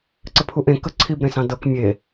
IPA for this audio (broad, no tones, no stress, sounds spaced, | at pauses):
ǀ ə pʰ u ʔ ẽ k ə ǀʰ i b ɾ ẽ s ɑ̃ d ɤ k mʲ e